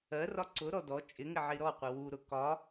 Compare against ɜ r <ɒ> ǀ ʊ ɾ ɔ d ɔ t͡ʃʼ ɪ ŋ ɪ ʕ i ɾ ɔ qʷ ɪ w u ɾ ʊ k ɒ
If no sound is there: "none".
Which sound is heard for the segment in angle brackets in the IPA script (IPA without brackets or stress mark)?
ɒ